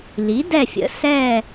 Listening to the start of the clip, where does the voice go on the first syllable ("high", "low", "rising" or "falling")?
rising